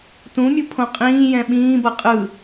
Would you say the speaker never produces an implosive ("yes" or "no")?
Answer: no